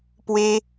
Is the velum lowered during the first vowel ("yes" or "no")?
no